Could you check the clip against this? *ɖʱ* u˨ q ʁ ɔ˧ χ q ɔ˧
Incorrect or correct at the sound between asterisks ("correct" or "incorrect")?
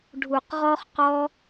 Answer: correct